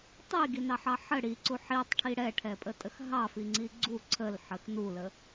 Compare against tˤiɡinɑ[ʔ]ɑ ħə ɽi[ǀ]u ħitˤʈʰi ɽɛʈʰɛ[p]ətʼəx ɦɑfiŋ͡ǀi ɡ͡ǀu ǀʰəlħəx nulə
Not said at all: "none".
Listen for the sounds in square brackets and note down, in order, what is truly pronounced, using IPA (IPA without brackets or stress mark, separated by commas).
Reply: ħ, ǀ, pʼ